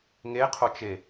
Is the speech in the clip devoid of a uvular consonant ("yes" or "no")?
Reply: no